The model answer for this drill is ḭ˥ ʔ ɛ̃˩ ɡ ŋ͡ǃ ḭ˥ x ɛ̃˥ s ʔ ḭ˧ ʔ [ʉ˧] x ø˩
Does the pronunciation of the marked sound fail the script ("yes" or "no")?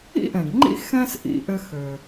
yes